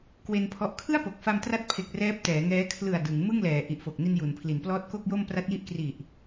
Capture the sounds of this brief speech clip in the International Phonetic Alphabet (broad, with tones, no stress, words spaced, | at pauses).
kwe˧npʰɔ˦˥ʔ kʰɯ˥˩a̯po˨˩k̚fa˧m tra˦˥t̚pʰe˨˩k̚ rɛː˦˥p̚tɛː˩˦ŋɛː˦˥ kʰlɯ˨˩a̯ dɯ˩˦ŋ mɯ˥˩ŋ lɛː˩˦ ʔi˨˩ʔfo˨˩k̚ni˧n ju˩˦n pʰli˩˦nplɔː˦˥t̚ko˥˩k̚jo˥˩m pra˦˥t̚ji˦˥ʔkri˨˩ʔ